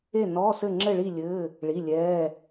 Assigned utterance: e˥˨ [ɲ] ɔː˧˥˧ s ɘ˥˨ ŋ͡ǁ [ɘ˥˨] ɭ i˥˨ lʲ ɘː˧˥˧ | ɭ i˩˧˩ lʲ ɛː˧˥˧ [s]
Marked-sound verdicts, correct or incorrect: incorrect: n, correct, incorrect: none

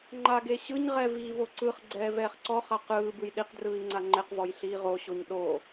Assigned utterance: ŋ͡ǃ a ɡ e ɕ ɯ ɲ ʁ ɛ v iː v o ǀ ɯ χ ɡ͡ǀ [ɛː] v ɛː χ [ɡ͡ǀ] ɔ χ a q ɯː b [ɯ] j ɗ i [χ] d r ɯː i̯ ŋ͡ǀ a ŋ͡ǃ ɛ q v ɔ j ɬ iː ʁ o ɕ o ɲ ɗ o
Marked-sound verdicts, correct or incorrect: correct, incorrect: ǀ, correct, incorrect: q

